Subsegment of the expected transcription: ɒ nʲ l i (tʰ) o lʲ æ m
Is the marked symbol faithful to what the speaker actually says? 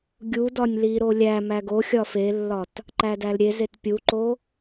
no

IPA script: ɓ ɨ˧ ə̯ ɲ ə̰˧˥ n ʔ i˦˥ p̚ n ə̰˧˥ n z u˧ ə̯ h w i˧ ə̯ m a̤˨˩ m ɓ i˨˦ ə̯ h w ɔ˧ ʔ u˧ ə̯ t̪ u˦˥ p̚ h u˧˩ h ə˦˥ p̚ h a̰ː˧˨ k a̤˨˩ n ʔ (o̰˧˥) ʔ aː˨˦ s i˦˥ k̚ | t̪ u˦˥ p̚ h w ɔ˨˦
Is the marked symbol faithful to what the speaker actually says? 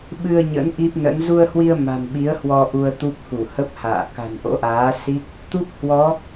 yes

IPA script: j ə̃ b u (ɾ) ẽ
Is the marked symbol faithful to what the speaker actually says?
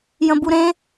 yes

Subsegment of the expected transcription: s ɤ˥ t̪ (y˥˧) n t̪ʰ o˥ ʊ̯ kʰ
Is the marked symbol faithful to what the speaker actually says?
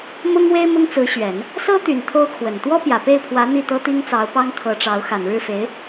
no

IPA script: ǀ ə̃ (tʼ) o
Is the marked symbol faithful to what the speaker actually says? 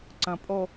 no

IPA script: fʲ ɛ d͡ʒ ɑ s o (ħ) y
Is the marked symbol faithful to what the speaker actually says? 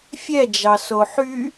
yes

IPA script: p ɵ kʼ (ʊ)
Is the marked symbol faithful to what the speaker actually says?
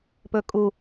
no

